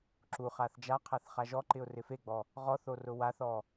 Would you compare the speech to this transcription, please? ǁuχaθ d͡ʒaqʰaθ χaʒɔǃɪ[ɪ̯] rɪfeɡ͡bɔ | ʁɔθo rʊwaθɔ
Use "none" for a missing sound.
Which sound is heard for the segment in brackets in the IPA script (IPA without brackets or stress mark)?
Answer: ʊ̯